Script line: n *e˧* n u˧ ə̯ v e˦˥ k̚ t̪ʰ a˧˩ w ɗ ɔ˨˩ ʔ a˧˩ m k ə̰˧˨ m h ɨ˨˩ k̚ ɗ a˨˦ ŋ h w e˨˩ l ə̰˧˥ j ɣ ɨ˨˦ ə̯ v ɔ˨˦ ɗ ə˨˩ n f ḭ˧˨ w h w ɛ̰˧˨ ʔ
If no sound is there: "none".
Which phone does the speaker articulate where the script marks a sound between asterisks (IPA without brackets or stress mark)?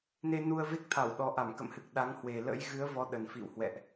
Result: e˧